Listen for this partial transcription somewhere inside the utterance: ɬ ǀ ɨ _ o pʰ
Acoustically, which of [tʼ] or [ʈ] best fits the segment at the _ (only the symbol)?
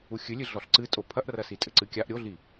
tʼ